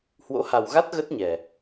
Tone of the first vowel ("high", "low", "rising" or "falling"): rising